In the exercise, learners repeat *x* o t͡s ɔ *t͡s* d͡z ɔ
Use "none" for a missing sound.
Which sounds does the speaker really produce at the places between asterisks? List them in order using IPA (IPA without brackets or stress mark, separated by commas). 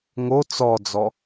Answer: ŋ, none